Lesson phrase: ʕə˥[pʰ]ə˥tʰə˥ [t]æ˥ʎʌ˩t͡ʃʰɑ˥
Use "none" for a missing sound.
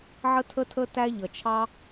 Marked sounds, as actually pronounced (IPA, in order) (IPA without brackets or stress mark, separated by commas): tʰ, t